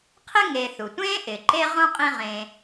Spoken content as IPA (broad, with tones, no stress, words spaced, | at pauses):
qʰɪ˥ŋe˨θu˩ tʷẽː˥ʔɪ˩ǃe˦ ʁõ˥qʼĩ˦ʁẽ˨